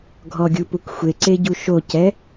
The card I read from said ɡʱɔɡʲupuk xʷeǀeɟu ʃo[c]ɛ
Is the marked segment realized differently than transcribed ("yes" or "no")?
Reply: no